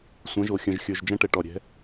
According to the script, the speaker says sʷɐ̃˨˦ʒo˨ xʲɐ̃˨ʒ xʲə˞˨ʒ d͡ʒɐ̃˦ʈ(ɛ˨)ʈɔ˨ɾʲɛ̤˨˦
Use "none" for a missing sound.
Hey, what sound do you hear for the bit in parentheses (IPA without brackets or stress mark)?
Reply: ɛ˨